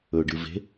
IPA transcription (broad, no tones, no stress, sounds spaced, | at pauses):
ɵ ɖ ɨ v e̤